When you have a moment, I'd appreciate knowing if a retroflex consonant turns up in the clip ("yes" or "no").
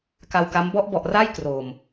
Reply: no